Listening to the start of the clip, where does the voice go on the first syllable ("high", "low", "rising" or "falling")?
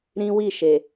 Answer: high